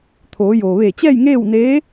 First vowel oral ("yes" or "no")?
yes